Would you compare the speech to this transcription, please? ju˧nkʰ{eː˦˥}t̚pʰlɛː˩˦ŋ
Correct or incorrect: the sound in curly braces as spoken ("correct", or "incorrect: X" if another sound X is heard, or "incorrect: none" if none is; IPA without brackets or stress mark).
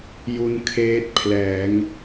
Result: correct